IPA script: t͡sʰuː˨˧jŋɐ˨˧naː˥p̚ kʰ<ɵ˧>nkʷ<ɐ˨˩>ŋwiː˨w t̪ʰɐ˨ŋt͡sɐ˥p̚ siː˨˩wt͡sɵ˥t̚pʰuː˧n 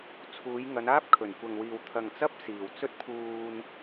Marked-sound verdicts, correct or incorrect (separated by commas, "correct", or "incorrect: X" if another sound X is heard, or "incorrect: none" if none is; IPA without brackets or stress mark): incorrect: ɵ˨˩, incorrect: ɐ˨